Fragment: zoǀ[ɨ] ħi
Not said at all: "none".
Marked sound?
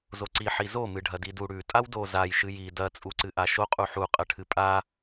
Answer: i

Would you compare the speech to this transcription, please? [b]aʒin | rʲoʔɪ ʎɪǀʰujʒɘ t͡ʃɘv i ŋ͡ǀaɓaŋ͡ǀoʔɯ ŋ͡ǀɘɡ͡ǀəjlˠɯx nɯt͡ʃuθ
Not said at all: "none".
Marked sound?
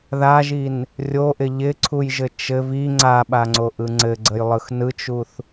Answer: ð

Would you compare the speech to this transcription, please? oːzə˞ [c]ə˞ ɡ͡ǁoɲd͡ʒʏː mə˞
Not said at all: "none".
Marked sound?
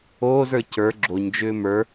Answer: c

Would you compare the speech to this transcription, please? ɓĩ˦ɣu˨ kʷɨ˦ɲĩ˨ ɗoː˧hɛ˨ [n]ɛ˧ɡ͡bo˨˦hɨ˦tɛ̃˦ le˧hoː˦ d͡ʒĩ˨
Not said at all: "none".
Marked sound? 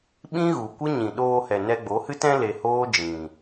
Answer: n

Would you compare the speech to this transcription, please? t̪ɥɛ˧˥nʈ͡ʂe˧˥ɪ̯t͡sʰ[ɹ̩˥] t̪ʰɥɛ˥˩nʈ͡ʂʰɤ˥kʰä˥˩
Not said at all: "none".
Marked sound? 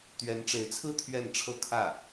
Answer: ɹ̩˥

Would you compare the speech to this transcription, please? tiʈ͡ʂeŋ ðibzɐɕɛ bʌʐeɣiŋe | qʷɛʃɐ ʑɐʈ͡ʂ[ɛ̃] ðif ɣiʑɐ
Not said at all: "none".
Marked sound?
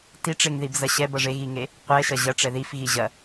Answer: ɛ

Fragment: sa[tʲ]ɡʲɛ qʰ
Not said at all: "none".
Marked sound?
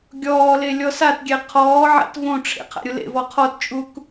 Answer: t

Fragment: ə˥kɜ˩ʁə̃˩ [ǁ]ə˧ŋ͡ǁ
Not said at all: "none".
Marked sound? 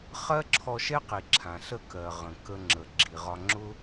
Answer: k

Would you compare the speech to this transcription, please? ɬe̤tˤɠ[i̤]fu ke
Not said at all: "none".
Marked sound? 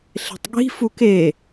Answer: i̤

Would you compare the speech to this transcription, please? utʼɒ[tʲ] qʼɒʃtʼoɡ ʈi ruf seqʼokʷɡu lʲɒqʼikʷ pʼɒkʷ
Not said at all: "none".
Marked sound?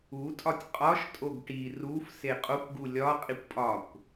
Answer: tʲ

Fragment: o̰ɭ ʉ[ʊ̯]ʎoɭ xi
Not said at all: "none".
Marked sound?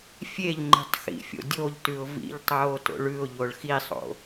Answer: ʊ̯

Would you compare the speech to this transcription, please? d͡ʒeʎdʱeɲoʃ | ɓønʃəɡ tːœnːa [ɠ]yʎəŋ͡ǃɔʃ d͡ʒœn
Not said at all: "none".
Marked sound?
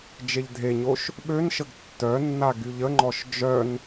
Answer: ɡ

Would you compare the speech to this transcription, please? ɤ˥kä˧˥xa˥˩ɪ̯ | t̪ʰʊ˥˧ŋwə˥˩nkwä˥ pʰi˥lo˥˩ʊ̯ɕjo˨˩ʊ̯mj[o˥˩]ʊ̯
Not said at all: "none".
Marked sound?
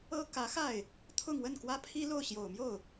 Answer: o˥˩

